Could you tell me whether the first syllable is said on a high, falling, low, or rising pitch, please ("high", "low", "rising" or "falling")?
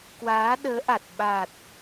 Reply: rising